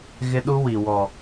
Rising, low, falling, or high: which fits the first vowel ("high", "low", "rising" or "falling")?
high